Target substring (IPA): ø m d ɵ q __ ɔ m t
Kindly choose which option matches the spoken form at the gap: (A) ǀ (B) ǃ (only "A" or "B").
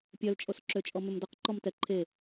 B